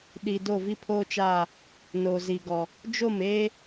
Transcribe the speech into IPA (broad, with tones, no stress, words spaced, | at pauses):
ɗi˨ do˦˨vi˦pʰoː˦t͡ʃaː˦˨ | no˨zi˨ɡɔ˨ | d͡ʒo˦˨meː˦